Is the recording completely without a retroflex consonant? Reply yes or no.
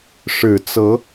no